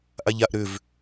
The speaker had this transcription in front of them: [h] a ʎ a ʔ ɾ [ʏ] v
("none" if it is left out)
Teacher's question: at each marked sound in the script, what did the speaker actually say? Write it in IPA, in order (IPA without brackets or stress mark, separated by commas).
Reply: ʔ, ʏ